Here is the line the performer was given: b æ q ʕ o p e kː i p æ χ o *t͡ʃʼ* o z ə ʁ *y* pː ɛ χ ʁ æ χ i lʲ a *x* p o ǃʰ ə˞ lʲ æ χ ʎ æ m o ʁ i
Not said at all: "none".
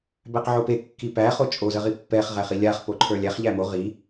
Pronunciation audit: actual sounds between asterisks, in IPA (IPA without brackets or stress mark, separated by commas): t͡ʃʼ, i, χ